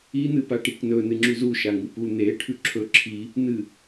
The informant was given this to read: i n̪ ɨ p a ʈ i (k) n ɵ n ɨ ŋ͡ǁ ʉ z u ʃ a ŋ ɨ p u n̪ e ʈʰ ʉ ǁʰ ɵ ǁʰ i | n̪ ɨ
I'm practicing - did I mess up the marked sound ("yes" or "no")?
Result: no